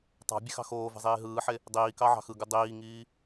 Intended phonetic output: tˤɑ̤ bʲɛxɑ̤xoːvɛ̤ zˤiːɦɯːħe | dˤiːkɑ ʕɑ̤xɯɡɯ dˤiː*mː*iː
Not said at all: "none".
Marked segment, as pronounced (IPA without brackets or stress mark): ŋ